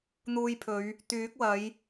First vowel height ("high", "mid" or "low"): high